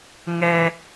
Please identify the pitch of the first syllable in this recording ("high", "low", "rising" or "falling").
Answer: low